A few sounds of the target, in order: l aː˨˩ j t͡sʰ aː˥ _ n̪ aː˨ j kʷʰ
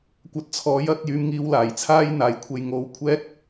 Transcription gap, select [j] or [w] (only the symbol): j